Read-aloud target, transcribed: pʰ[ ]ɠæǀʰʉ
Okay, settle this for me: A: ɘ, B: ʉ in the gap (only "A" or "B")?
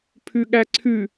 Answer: B